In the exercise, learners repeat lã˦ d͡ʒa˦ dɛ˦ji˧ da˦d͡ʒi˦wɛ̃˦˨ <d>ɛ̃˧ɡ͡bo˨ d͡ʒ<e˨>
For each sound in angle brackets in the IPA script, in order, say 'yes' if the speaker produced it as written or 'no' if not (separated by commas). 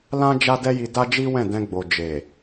yes, yes